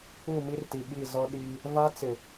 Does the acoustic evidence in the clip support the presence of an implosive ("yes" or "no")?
yes